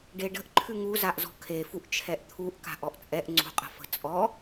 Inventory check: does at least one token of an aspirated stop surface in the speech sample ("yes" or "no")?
yes